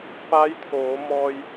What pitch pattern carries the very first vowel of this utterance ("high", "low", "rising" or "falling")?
rising